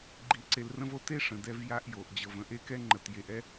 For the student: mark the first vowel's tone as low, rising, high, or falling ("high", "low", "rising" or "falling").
rising